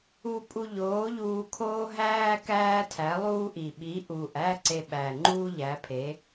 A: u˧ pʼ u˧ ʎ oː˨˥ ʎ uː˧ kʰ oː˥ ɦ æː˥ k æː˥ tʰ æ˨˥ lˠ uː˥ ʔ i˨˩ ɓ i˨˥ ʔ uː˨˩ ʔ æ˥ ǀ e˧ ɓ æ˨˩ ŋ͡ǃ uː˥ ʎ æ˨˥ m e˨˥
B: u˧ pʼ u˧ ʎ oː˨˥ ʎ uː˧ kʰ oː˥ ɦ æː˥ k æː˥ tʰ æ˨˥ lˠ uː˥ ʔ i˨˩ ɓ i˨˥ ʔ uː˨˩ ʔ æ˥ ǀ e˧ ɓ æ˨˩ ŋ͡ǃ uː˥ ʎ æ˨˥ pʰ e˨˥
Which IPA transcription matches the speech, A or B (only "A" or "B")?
B